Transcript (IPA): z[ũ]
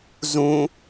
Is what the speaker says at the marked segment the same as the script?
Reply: yes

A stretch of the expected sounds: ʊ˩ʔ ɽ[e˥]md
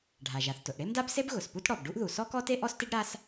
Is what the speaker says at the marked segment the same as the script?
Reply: yes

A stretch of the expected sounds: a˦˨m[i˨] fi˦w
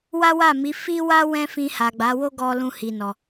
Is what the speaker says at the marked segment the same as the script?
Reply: no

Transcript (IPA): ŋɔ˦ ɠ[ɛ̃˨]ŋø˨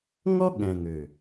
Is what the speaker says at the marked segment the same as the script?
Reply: yes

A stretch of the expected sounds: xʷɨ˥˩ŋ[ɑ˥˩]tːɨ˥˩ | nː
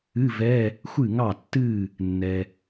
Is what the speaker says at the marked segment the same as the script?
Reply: yes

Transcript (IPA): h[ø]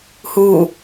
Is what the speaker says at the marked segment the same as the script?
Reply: no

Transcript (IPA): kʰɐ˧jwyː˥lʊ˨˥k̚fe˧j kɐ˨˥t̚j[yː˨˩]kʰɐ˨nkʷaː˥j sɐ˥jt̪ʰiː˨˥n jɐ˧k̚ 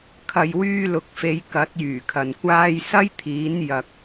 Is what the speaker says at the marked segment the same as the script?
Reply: yes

